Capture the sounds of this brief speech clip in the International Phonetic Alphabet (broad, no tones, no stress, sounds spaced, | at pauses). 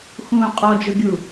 x ũː qʼ ɔ d͡ʒ ʊ ɡʲ u